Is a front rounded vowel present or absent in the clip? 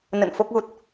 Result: absent